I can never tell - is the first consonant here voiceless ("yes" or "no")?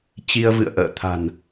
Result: yes